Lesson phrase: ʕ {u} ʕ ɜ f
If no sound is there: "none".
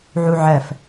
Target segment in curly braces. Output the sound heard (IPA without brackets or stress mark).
u